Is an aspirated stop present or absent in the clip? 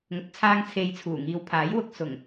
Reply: present